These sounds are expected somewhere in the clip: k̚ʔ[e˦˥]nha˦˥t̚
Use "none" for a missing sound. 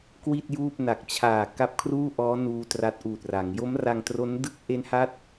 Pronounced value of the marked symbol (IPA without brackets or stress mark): e˦˥